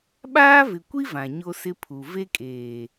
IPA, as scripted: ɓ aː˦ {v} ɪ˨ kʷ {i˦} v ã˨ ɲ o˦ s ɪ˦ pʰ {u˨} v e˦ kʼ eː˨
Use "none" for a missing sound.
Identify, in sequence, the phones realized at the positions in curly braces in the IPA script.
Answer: v, i˦, u˨

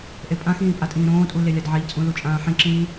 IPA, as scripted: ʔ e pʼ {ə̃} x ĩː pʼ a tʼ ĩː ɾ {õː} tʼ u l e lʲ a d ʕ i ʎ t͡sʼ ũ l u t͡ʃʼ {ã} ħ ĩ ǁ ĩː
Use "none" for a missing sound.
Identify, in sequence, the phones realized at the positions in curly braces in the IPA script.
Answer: ã, õː, ãː

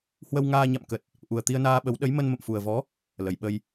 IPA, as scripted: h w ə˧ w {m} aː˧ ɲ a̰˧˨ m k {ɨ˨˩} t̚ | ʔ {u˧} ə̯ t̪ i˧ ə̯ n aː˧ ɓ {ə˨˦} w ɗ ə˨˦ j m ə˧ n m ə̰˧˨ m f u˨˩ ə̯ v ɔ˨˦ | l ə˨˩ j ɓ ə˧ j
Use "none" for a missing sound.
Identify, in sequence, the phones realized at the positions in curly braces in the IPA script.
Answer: ŋ, ə˨˩, u˨˩, ə˨˦

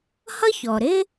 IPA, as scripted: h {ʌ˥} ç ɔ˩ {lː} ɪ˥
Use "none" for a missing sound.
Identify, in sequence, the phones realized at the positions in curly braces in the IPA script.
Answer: ʌ˥, ɾ

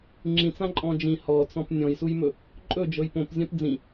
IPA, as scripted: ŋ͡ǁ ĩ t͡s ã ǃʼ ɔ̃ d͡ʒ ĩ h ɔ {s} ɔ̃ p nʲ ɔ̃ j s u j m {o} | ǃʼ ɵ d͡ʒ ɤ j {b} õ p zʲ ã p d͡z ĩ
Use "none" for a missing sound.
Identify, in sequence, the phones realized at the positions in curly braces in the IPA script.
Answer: t͡s, ɵ, p

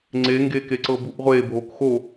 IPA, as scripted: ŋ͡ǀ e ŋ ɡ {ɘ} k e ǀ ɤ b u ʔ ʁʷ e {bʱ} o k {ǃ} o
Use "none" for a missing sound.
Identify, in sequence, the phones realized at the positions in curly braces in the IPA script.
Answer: e, bʱ, x

